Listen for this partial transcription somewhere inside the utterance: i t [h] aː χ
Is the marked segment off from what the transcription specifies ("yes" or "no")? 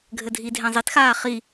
yes